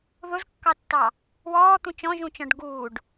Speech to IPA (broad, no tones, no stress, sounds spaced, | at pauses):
ð ʊ z kː ɑ tː ɑ | w ɔː t̪ ũ t͡ʃ ɔ̃ ʒ ũ t͡ʃ ɔ̃ ɖ ɡ uː ɖ